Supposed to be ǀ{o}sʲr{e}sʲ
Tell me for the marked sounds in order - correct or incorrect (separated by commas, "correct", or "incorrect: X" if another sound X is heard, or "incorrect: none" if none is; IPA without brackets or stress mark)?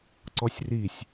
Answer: incorrect: ɔ, incorrect: i